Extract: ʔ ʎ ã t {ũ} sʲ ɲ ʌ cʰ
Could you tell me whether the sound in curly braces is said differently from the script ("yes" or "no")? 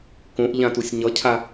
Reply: yes